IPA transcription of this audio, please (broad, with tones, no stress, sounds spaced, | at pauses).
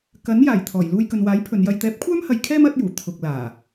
k ɐ˨˥ n j aː˨˩ j t̪ʰ ɔː˨˩ j l uː˧ j k ɵ˨ n w aː˨˥ j pʰ ɵ˨˧ n j ɐ˧ j t̪ ɛː˨˥ p̚ kʷʰ œː˥ m h ɐ˨ j kʰ ɛː˥ m ɐ˨˥ t̚ j uː˨˩ t̪ʰ ʊ˨ k̚ l aː˨˩